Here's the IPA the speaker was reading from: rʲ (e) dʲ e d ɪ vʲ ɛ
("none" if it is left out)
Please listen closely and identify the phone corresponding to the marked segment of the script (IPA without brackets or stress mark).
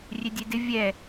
e